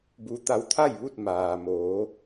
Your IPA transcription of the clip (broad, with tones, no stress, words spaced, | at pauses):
bu˧ t̪a˧wt̪ʰa˥˨jʋu˥˨t̚ maː˩moː˩˧